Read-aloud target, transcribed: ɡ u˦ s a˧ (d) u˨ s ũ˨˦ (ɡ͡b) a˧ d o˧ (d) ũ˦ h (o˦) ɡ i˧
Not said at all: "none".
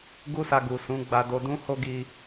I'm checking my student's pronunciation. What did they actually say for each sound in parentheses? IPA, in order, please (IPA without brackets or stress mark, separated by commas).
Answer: ɡ, ɡ͡b, d, o˦